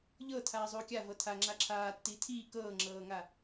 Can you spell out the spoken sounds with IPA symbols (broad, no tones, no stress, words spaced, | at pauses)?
ʎɤ tʰaːzˤuːkʲa vɤtʰa ŋ͡ǁaǁʰaːtːiː tʰiː kɤːŋ͡ǁɤːŋa